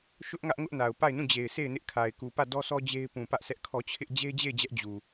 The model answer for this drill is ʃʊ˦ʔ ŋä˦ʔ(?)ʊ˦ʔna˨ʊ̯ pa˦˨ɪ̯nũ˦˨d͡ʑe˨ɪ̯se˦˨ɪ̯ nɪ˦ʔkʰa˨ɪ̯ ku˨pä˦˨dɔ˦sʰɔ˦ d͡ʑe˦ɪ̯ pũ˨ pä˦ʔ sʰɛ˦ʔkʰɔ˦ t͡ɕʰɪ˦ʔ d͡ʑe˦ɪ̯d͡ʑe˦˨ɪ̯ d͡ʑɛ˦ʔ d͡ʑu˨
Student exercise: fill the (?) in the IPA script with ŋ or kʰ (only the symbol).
ŋ